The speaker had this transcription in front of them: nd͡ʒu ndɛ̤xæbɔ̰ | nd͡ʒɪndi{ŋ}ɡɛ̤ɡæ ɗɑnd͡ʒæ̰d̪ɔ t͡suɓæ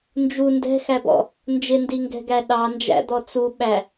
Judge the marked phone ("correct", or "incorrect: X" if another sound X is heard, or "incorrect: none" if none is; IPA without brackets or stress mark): correct